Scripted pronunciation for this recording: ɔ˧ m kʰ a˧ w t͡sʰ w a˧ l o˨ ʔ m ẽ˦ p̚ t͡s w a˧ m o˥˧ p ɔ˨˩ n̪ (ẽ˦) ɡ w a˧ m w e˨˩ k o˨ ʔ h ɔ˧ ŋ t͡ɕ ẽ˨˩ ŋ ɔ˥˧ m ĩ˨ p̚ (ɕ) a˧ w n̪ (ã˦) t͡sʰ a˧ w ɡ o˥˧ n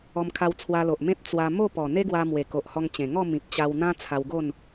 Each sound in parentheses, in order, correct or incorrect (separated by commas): incorrect, incorrect, correct